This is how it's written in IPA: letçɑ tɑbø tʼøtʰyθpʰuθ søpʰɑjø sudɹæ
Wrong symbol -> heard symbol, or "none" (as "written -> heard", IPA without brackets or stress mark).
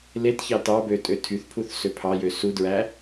none